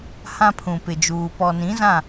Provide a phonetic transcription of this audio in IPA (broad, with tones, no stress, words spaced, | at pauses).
hã˦pʰũ˨pɪ˨d͡ʒuː˨ pɔ˨nĩ˨˦zã˦˨